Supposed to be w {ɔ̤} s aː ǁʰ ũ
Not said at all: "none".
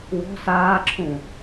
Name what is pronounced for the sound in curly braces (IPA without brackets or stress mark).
ɔ̤